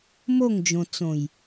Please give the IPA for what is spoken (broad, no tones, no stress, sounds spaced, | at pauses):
m o ŋ d͡ʒ õ t͡s õ j